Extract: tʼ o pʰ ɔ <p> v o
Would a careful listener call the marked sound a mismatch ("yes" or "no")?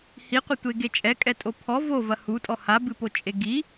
yes